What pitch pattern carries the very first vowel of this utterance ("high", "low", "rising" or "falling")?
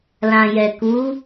low